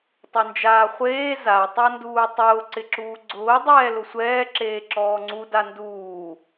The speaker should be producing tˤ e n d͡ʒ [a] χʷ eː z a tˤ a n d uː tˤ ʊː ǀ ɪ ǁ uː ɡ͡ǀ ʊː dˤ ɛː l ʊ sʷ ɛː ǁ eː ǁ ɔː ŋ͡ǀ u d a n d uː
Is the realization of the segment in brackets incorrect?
yes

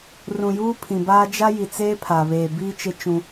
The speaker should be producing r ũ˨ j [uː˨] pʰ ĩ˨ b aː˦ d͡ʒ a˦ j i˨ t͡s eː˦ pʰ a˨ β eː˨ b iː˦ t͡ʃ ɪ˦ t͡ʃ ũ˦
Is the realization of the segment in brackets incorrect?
yes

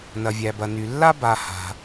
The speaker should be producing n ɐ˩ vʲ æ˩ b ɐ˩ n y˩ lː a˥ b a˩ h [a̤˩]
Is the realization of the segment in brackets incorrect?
no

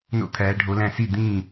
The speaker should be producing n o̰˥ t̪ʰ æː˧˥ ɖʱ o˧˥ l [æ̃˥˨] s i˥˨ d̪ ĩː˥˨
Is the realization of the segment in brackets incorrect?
no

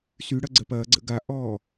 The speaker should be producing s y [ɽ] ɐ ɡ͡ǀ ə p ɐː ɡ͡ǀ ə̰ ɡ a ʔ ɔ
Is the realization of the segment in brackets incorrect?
no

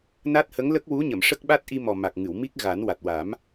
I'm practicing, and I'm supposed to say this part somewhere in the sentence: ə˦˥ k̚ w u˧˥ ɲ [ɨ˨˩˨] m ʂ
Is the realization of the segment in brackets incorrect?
yes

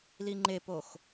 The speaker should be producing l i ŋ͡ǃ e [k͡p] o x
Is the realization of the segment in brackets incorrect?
yes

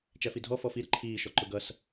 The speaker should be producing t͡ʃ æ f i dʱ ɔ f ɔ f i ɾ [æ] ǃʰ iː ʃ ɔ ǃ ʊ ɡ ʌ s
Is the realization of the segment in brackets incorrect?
yes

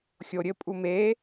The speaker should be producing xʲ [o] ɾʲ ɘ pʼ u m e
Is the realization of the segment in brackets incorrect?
no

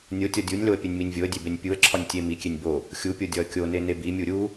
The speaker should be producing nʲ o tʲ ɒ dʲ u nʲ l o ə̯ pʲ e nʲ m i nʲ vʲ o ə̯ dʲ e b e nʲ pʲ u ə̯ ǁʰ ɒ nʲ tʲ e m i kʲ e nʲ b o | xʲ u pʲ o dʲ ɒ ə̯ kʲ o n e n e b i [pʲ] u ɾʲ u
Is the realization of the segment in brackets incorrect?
yes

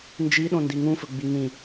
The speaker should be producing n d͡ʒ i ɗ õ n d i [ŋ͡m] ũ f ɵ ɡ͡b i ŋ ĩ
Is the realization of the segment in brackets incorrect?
yes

